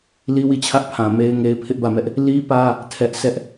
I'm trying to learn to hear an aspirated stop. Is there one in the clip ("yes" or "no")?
yes